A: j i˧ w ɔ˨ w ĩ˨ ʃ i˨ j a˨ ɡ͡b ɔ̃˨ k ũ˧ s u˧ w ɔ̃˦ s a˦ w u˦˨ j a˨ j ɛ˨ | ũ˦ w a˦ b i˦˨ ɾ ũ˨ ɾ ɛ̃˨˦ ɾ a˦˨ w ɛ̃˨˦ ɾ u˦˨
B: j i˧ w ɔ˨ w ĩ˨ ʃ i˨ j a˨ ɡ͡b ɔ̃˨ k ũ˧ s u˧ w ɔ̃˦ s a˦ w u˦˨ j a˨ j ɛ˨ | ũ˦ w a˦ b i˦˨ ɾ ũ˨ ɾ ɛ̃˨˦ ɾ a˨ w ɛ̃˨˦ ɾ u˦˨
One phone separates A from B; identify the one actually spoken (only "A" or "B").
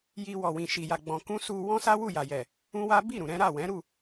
A